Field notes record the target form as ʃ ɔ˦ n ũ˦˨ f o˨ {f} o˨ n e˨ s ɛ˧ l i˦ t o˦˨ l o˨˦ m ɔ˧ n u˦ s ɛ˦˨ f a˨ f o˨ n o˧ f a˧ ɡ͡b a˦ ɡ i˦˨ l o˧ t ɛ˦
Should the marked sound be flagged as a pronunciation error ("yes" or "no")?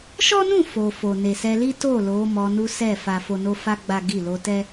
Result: no